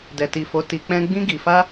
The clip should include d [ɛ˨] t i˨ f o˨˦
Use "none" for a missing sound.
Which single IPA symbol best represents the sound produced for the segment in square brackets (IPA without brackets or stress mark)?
ɛ˨